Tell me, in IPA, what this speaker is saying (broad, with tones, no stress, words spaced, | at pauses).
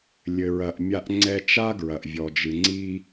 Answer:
lʲɘ˩ɹɐ˩ʔmʲa˧ʔ ŋ͡ǀɛ˧t͡ʃa˥ ɡɹɐ˩ʔvʲɔ˩d͡ʒɨ˩ ŋ͡ǀi˧